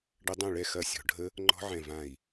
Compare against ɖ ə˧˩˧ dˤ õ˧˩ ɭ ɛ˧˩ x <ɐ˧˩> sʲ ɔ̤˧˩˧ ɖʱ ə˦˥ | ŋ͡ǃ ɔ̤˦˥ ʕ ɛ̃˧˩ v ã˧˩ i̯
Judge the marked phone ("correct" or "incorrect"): correct